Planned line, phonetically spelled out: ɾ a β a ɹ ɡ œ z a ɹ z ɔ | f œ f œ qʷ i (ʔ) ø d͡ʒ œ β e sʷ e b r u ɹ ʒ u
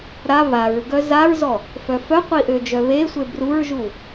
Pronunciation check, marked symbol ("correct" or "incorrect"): correct